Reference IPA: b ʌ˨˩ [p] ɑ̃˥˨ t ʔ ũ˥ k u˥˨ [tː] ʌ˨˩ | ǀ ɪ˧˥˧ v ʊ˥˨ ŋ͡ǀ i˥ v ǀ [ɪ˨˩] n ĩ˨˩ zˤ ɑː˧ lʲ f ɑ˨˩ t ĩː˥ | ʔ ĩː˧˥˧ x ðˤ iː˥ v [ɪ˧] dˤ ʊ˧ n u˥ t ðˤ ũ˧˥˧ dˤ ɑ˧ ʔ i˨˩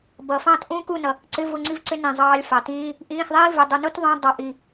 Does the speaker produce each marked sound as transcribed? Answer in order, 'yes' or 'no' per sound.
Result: no, no, no, yes

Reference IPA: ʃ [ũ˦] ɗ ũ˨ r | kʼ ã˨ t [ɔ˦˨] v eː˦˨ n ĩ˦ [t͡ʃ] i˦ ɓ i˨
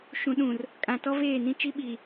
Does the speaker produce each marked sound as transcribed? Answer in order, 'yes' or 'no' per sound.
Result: no, no, yes

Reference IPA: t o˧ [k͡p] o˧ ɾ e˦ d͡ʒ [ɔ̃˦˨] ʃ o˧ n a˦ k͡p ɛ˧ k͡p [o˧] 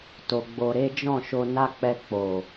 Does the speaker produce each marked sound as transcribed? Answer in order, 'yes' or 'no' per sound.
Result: no, yes, no

